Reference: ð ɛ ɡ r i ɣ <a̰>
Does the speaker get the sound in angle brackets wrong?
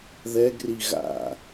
no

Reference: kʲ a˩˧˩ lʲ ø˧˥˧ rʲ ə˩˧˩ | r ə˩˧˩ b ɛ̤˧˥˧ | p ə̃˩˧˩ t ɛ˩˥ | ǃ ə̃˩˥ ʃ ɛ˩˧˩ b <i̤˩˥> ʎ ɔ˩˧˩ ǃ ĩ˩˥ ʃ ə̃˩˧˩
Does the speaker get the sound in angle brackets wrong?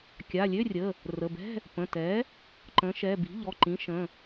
no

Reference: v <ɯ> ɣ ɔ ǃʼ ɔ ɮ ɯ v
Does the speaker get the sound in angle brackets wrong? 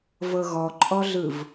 yes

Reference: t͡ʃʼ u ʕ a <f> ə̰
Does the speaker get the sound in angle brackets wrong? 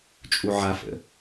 no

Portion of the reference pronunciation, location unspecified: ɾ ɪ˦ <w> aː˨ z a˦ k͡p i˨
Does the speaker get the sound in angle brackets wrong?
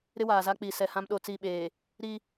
no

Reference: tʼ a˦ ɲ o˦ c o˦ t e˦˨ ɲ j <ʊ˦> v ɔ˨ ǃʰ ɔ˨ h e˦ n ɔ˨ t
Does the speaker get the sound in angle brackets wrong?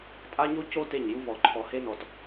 yes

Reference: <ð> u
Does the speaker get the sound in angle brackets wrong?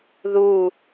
no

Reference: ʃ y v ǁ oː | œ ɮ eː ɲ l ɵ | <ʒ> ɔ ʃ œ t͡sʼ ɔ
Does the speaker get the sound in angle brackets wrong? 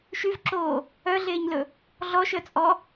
yes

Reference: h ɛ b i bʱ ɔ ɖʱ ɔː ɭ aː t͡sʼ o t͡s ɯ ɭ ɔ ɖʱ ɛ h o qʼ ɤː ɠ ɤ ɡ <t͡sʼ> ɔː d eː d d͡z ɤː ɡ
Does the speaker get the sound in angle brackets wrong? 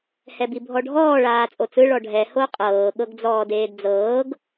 yes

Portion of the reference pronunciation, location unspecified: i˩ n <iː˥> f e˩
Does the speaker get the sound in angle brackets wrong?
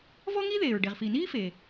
no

